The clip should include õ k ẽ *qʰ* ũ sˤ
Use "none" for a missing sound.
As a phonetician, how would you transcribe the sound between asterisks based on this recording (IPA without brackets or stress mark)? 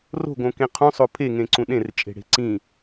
qʰ